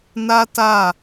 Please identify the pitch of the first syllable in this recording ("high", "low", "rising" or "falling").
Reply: high